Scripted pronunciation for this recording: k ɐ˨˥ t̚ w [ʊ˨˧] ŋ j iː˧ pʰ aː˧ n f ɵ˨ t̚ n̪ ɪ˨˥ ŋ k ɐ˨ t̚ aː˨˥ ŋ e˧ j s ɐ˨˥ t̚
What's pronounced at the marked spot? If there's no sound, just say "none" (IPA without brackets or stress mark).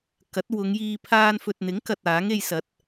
ʊ˨˧